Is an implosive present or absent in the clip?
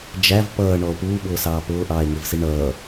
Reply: present